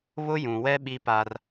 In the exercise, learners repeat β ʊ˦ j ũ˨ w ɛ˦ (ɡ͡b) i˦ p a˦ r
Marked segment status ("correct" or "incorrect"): incorrect